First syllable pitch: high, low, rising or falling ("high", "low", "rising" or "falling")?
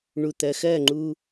low